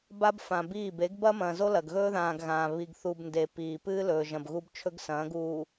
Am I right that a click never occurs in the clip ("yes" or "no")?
yes